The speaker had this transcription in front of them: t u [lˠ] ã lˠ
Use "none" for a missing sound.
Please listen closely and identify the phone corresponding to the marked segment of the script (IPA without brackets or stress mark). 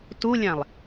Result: lʲ